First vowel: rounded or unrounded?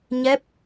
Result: unrounded